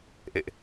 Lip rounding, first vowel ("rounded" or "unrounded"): unrounded